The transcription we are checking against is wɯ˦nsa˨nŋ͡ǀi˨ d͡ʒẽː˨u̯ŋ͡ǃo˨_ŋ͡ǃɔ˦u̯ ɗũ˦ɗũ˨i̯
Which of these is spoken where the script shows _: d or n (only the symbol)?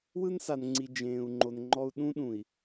n